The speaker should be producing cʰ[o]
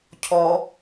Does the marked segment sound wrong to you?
yes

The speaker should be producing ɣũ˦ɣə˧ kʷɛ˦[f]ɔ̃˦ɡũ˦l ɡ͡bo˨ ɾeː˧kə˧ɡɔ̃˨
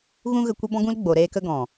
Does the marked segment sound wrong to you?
yes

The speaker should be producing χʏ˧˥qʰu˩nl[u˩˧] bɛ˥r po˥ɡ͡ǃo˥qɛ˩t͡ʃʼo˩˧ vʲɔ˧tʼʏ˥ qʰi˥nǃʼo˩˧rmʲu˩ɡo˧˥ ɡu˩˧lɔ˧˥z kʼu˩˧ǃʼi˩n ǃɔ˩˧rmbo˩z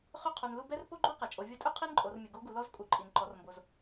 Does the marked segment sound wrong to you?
yes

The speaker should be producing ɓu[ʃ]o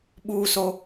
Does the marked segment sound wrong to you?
yes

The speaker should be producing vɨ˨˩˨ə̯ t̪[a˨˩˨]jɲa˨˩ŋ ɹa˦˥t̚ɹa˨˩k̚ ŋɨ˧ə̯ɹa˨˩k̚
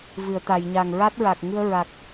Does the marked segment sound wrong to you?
no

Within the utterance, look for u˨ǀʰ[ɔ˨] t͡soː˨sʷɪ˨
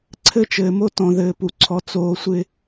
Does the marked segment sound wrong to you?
no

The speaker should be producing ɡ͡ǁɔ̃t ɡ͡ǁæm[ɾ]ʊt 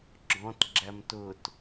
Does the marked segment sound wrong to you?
yes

